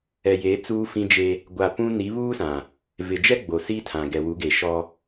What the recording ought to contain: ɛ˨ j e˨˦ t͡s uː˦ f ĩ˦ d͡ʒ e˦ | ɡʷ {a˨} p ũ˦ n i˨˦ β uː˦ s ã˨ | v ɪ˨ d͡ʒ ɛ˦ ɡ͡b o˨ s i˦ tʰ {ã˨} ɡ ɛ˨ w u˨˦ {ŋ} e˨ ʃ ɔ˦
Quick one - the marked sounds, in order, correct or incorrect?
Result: correct, correct, incorrect: ɡ

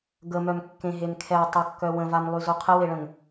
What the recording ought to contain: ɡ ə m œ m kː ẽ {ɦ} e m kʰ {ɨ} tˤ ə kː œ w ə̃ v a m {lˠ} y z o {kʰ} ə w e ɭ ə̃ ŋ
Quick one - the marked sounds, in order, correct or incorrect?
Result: correct, incorrect: ɛ, correct, incorrect: qʰ

